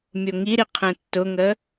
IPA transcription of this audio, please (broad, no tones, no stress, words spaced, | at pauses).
mʲoŋiɾi qʰɛ̃tːʊŋə